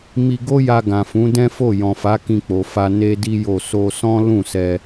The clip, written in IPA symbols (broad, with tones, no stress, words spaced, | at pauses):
mi˧ɡo˦ja˧ ɡã˨fũ˨˦dɛ̃˦fo˦˨ jɔ̃˨fa˨˦ kĩ˧k͡po˨fa˧ ne˦di˦jo˦˨ so˧sɔ̃˦ lũ˦˨sɛ˧